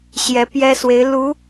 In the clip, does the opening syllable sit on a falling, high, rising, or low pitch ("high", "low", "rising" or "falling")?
rising